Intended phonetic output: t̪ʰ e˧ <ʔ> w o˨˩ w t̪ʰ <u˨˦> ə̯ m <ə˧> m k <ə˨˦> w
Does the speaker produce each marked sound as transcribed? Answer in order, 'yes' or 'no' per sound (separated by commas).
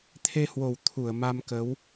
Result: no, no, no, yes